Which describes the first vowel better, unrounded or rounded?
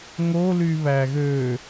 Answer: rounded